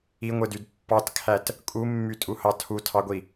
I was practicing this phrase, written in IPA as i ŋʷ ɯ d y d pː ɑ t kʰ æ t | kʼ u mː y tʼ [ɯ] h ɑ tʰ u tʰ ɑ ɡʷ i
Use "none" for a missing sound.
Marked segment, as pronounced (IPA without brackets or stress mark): u